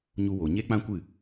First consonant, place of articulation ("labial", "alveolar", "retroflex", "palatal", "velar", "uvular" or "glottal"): palatal